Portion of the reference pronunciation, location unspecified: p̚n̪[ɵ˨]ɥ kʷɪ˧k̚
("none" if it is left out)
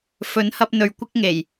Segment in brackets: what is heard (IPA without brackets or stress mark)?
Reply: ɵ˨